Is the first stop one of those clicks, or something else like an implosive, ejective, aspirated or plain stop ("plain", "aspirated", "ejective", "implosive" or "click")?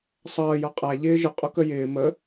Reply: ejective